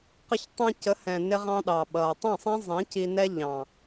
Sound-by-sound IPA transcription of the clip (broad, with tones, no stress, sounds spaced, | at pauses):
q ə˧ ç tˤ ɛ̃˧ c ə˨˦ h ɛ̃˨ n ɪ˧ ʁ ɑ̃˧ ɗ ɑ˨ ɓ ʌː˨ tˤ ɛ̃˦˨ sˤ ɛ̃˦ zˤ ĩ˨˦ c i˧ n ɛ˦ ʎ ɑ̃˨